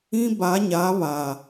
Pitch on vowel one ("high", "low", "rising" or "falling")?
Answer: high